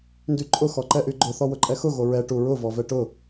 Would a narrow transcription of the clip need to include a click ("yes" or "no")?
yes